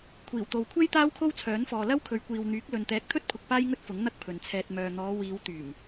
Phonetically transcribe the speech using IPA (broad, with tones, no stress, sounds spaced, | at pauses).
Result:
kʷʰ iː˨˩ w t̪ o˨ w kʷʰ e˥ j t̪ aː˥ w kʰ o˥ w t͡sʰ œː˨˥ n f ɔː˨ l ɐ˥ w kʰ ɵ˨˧ ɥ kʷ iː˨ w n̪ yː˨˥ k̚ l ɵ˨ n t̪ ɛː˨˥ k̚ t̪ʰ ɵ˥ t̚ pʰ ʊ˨ k̚ p aː˥ j ŋ ɵ˥ t̚ f ʊ˨˥ ŋ n̪ ɐ˥ k̚ pʰ ɵ˨ n t͡sʰ ɛː˧ t̚ m œː˨ n̪ ɔː˨˧ w iː˨˧ w t̪ yː˨˩ m